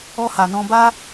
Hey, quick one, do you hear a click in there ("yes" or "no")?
no